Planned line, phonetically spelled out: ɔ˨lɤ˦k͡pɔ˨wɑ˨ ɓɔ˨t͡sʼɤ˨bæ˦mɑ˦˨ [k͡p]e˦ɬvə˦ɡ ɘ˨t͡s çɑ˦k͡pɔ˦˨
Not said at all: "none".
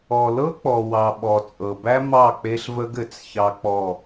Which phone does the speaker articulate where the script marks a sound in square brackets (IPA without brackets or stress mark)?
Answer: k͡p